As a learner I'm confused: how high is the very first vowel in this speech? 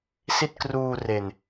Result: high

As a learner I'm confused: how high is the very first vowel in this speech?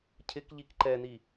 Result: high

